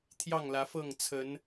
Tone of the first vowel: falling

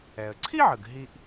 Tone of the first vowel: low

